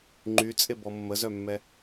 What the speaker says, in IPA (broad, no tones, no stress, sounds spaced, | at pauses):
ŋ͡ǃ y t͡sʼ e b ɔ mː ə z œ mː ɛ